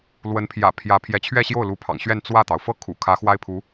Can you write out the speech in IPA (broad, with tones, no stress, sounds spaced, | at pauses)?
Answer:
l w ə˧˥ n pʰ j ä̰˨˩ pʰ j ä˧˥ pʰ j ɛ˧˥ t͡ɕʰ ɥ ɛ˥˧ ɕ j o˥˩ ʊ̯ l u˧˥ pʰ ɑ̰˨˩ ŋ ɕ ɥ ɛ˥˧ n t͡s w ä˥˩ t̪ ɑ˩ ʊ̯ f ɤ˥ kʰ ṵ˨˩ kʰ ä˧˥ x w a˥ ɪ̯ pʰ u˧˥